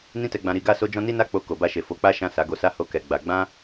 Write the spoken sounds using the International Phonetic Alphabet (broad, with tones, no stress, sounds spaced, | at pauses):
n ĩ˦ t ɛ˧ ɡ͡b ã˧ ɾ i˧ ɡ a˦ s o˦ d͡ʒ ɔ̃˦ n i˦ n a˦ k͡p o˧ k o˨ b a˧ ʃ e˨ f o˨˦ k͡p a˦ ʃ ã˦˨ s a˨˦ ɡ o˧ s a˦ h o˦ k ɛ˧ ɡ͡b a˧ ɡ͡b ã˦